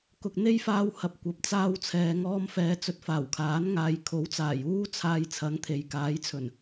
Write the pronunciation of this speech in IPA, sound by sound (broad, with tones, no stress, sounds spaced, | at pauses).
k ʊ˨ k̚ n̪ e˥ j f aː˧ w h ɐ˨ p̚ kʷ ɐ˨ p̚ t͡s aː˧ w t͡sʰ ɛː˨ ŋ ɔː˧ m f ɛː˨˧ t͡s ɵ˧ t̚ f aː˨˩ w kʰ aː˨˥ n ŋ aː˨ j kʰ o˨˥ w t͡s aː˨˩ j uː˥ t͡sʰ aː˧ j t͡sʰ ɐ˨˥ ŋ t̪ʰ e˨ j k aː˨˥ j t͡sʰ ɵ˨˩ n